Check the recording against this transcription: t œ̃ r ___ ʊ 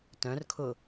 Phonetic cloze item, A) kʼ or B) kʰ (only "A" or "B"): B